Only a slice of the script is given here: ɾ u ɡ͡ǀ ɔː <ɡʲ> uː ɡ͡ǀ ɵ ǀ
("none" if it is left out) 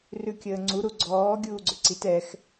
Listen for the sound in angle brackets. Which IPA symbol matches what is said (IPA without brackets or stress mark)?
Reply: ɡʲ